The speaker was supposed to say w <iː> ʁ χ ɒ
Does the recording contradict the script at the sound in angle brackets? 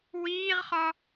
no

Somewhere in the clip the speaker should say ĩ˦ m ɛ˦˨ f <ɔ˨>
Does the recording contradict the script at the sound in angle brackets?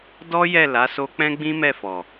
no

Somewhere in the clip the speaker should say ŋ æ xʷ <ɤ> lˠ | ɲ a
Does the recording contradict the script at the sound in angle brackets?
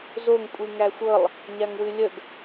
no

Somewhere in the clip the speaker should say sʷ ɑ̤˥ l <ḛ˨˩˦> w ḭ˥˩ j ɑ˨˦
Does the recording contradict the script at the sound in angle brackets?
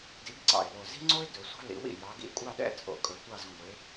yes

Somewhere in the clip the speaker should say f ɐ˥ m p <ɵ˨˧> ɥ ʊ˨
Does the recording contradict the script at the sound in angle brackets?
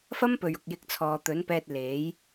yes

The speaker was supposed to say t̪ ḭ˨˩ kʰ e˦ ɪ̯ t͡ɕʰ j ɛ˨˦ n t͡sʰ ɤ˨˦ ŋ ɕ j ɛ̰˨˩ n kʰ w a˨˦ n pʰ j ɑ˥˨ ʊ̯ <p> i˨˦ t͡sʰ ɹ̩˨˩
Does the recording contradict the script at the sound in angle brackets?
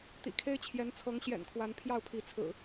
yes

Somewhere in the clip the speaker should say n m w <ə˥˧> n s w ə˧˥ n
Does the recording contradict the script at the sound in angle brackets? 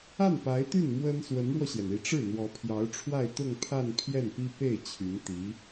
yes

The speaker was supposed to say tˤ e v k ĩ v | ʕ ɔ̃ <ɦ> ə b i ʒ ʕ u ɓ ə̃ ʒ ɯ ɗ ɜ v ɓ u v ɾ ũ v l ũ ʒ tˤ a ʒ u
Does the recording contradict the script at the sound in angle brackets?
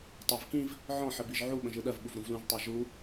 yes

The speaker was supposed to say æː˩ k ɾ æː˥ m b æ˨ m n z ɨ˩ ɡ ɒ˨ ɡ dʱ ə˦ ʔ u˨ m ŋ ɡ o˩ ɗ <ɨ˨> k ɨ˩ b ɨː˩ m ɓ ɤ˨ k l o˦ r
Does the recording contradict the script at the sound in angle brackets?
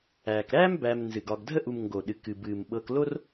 yes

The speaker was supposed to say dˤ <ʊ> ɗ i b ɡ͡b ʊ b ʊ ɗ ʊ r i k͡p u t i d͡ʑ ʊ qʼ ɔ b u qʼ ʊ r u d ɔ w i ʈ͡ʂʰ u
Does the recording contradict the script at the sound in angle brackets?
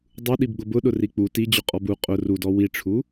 yes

